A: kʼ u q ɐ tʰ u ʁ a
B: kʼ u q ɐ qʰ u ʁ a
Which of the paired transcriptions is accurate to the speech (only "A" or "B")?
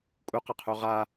B